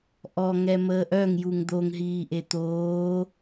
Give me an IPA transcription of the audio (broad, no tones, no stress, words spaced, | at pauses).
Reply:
ʔɔ ŋɛməːʔœŋ juŋd̪oŋ ɦiːʔet̪oː